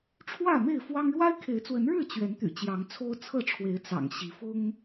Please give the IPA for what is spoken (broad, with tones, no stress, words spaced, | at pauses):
ʈ͡ʂʰwä˥˨me˥˨ɪ̯fwɑ˦ŋ ɻwa˦ɪ̯kʰe˨˦ɪ̯t͡swə˨˦nɻɻ̩˥˨ t͡ɕɥɛ˨˦nt̪y̰˨˩ t͡ɕjɑ˨˦ŋt͡sʰo˦ʊ̯ t͡sʰɤ˥˨ʈ͡ʂʰwe˨˦ɪ̯ t͡sɑ̰˨˩ŋɕi˨˦ fʊ˦ŋ